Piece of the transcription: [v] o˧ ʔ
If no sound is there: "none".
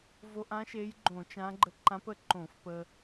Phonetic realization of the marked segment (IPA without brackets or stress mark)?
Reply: v